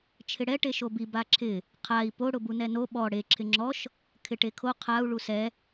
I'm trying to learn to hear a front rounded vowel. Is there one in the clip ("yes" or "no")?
no